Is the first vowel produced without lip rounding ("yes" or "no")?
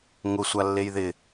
no